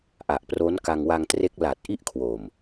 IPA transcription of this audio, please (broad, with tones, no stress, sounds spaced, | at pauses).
ʔ a˨˩ ʔ p r o˦˥ n k a˧ ŋ w a˧ ŋ t r e˦˥ k̚ l a˨˩ t̚ ʔ i˥˩ ʔ kʰ w o˨˩ m